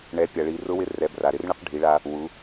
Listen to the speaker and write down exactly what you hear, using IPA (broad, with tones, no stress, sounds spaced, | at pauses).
ɳ ɛ˩˧ pʲ a˩ ɭ i˩˧ r ʊ˧˥ w ɪ˧˥ r ɛ˩˧ b r a˩ ɾ ɪ˧˥ r ɳ ɪ˥ q ɖʱ i˩˧ ɭ a˧ | w u˩˧